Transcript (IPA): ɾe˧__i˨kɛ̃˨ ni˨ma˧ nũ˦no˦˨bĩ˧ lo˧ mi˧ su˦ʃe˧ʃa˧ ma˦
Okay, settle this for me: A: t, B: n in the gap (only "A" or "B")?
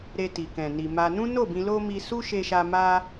A